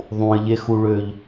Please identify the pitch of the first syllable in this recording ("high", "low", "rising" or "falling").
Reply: low